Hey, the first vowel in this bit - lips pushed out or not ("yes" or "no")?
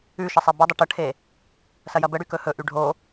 yes